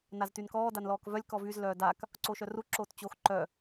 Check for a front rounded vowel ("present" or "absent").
present